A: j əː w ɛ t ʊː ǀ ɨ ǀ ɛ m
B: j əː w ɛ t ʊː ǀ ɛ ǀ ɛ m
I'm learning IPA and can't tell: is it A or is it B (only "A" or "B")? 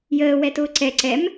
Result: B